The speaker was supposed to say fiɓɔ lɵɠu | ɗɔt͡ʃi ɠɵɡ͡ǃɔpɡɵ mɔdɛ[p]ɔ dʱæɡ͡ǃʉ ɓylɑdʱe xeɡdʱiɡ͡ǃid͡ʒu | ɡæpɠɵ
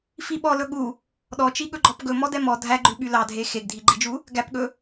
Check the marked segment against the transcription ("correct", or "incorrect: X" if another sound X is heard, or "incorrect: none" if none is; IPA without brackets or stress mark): incorrect: m